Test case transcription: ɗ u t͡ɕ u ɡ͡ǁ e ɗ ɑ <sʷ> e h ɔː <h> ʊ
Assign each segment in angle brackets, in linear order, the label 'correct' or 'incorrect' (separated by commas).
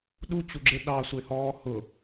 correct, correct